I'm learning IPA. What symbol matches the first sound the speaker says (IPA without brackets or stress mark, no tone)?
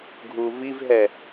ɡʱ